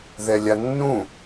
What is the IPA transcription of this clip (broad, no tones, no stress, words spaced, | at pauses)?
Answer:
ðɛlʲanːũ